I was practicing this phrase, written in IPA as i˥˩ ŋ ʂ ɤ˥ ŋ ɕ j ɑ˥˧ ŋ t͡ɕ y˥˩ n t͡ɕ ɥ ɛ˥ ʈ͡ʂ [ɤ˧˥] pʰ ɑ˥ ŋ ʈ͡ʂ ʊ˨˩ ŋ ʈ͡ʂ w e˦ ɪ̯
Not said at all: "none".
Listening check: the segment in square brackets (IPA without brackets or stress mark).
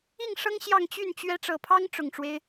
ɤ˨˩